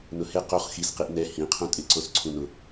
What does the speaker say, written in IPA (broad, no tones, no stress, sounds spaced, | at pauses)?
n ʊ h e q o χ x i s q i ʔ n ɛ h ĩ qʰ ũ tʼ ɪ ǀ o s ǀʰ ũ n ʊ